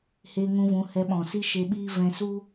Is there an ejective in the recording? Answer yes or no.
no